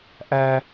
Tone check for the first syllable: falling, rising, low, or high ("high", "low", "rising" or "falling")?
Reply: high